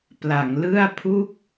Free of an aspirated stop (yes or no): no